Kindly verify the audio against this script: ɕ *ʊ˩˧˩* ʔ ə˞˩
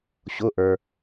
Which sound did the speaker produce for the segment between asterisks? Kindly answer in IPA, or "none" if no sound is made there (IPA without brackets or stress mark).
ʊ˩˧˩